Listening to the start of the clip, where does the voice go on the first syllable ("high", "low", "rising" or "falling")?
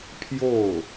falling